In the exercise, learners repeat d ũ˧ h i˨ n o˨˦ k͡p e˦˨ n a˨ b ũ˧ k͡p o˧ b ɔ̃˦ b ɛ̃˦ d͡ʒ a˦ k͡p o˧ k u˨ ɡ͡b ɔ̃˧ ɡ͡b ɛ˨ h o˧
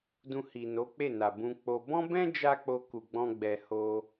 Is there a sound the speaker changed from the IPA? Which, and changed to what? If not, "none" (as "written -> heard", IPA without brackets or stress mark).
none